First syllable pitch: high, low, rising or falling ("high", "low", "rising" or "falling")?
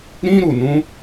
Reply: high